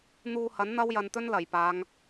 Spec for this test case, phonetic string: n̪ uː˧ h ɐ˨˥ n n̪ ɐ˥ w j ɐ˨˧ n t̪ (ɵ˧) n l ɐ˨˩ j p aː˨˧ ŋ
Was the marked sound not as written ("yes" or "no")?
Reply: yes